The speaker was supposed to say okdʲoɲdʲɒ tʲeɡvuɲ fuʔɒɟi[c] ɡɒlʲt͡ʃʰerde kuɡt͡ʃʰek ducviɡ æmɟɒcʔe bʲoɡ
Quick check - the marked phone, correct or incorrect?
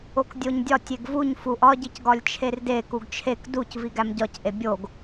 correct